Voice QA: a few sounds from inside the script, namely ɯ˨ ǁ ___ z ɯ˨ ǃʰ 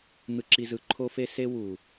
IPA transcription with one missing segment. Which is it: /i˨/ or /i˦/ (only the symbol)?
i˨